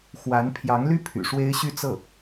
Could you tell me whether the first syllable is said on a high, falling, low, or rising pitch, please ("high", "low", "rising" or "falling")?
rising